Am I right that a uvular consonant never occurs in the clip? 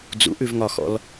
yes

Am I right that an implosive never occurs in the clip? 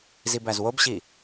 yes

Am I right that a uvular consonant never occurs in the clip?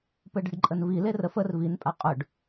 no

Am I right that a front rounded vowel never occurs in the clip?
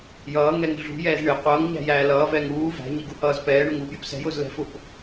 yes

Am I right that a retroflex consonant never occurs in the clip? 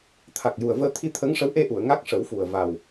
no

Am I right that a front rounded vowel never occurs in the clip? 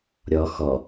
yes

